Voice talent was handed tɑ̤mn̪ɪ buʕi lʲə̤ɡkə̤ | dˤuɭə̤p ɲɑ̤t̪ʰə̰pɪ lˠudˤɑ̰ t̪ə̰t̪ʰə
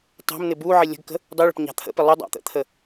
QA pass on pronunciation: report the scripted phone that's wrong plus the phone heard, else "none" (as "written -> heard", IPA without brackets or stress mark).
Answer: none